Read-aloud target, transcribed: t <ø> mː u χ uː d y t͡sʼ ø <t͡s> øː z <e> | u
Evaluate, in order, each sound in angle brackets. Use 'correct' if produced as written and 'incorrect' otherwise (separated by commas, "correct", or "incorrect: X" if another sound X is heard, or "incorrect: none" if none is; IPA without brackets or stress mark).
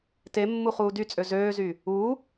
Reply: incorrect: e, incorrect: z, incorrect: y